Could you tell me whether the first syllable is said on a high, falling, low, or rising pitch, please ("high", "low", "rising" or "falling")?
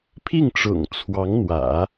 falling